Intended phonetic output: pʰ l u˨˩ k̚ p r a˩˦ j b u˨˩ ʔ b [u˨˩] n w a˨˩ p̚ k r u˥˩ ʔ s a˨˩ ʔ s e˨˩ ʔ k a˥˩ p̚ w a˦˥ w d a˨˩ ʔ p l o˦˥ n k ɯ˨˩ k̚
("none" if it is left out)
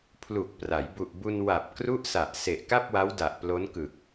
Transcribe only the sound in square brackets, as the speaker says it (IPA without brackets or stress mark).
u˧